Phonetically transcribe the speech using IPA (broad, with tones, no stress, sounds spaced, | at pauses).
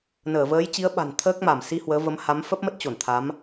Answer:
n əː˧˩ v əː˨˦ j t͡ɕ i˨˦ ə̯ ɓ a̤˨˩ n t̪ʰ əː˦˥ k̚ m a˧˩ m s i˧ h w əː˨˦ v ə˨˦ m h a˨˦ m f ə˦˥ p̚ m ə˦˥ t̚ t͡ɕ o˧˩ n t̪ʰ a˨˦ m